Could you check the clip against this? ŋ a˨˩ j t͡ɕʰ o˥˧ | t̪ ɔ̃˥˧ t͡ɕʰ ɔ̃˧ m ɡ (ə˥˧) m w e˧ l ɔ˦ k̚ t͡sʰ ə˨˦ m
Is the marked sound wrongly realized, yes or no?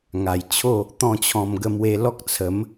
no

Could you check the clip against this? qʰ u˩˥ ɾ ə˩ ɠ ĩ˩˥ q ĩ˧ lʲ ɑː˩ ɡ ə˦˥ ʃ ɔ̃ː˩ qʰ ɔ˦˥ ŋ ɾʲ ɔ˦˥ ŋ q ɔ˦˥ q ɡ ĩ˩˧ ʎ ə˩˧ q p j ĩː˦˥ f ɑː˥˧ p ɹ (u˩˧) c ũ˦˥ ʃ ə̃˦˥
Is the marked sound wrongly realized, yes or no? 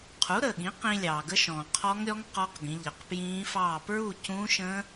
yes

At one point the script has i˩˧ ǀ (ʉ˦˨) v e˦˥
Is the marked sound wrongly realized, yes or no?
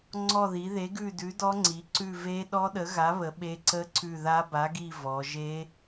no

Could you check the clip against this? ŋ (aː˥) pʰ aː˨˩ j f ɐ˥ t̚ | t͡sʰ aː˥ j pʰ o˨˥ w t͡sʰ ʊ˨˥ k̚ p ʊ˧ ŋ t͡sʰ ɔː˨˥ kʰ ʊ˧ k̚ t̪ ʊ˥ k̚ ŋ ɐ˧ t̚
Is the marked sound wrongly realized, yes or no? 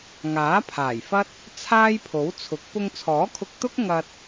yes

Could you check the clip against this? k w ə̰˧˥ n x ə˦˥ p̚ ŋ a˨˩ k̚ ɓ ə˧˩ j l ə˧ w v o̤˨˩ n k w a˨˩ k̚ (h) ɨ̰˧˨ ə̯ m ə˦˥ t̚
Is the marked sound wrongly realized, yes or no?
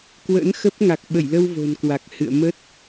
no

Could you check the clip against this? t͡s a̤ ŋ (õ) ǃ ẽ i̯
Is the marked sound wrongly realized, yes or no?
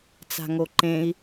yes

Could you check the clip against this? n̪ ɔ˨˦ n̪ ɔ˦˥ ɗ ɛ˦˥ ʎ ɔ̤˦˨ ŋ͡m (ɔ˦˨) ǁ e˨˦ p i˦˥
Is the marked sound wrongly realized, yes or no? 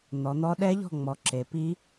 yes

